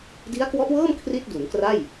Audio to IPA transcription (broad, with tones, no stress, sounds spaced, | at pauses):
d i˦˥ a̯ k w ɔ˦˥ ʔ w ɤː˥˩ m kʰ r i˥˩ t̚ d u˩˦ n k r a˥˩ j